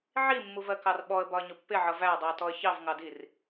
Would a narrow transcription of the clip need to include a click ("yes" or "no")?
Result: no